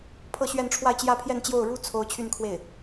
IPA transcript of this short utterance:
pʰ ɤ˥˧ ɕ ɥ ɛ˥˧ n ʈ͡ʂʰ w a˥˧ ɪ̯ t͡ɕ j ä˥˧ pʰ j ɛ˥˧ n t͡ɕ j o˥˩ ʊ̯ ɻ u˥ t͡sʰ o˥ ʊ̯ t͡ɕʰ y˥˧ n kʰ w e˥˩ ɪ̯

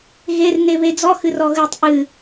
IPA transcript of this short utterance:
ɣ e r n e β e d͡z ɔ x ɨ r ɔ ɣ ɨ tˤ ʔ ɨ

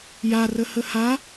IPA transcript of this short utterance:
j a r ə h ə h a

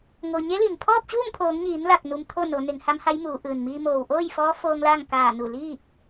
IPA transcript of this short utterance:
ŋ o˩ ɲ e˧˥ l i˩ n pʰ ɔː˥˨ p̚ t͡ɕ uː˥˨ m pʰ oː˩˧ ŋ ɲ iː˩˧ n l a˧˩ k̚ n u˧ m t̪ʰ o˥˨ n o˩˧ n e˩˧ ŋ h a˧˥ m h a˧˥ j m uː˩˧ ʔ ɯː˩ n m iː˧ m oː˩ w ʔ oː˥˨ j f ɔː˧˥ f oː˧ ŋ l aː˥˨ ŋ k aː˧˩ n u˧˩ l iː˥˨ k̚

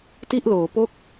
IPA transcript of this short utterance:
t i˥˩ ʔ l oː˩˦ p o˥˩ k̚

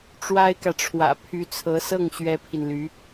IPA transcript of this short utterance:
ʈ͡ʂ w a˥ ɪ̯ k ä˨ ʈ͡ʂʰ w ä̰˨˩ pʰ y˧˥ t͡sʰ ɤ˧˥ s ɤ˥˩ ŋ ɕ ɥ ɛ˥ pʰ i˨ n l y˧˥

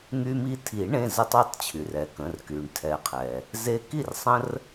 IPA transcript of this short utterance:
ŋ y˦ m i˦ tʰ i˨˩˦ ɳ ẽ˩˧˩ z ə˦ tˤ y˩˧˩ tˤ t͡ɕʰ y˩ r ɛ˩ k ə̃˩˧˩ r k y˩ ɳ tʰ ɛ˨˩˦ qʰ ɛ˩ | z e˦ k i˥˩ r sˤ ə̃˦ r

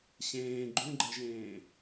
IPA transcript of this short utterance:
ɕ ẽː ɡ͡ǃ ũ ɡ͡ǃ ɛ ʒ ẽː

